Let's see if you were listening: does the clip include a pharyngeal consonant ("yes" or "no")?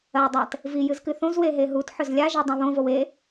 yes